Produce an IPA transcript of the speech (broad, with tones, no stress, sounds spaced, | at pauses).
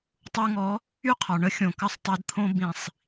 tˤ u˧ ŋ ɔ˨˦ | y˦ qʰ ɒ˨ ɳ ə˦ xʲ õ˨ k ɐ˧ sˤ tˤ i˨ d t̪ʰ õ˧ b ĩ˨ sˤ